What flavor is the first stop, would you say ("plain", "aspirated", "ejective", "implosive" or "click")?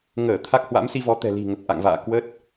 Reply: aspirated